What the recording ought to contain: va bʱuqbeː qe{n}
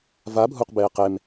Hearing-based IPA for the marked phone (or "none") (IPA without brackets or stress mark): m